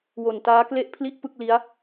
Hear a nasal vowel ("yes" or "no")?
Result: no